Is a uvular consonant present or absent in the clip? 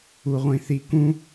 present